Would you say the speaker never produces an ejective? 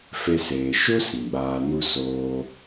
yes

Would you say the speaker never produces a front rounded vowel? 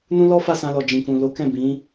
yes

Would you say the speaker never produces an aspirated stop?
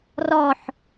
yes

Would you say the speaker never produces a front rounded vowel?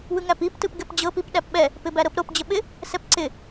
yes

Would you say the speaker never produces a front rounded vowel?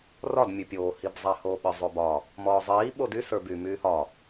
no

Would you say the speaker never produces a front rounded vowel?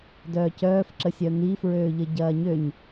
no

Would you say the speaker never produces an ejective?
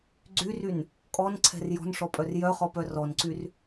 no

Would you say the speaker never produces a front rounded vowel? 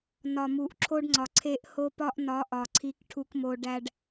yes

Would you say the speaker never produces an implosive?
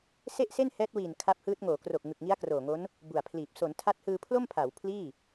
yes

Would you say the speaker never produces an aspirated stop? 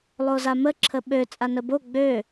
no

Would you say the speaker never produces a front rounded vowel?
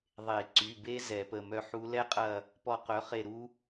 no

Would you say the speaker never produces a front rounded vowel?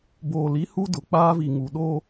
yes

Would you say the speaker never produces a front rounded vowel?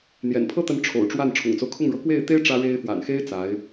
yes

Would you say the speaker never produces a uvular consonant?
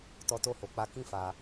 yes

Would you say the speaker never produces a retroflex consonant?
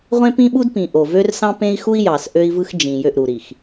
yes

